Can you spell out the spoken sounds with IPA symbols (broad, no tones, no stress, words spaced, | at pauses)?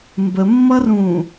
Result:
mbəmːʌrũː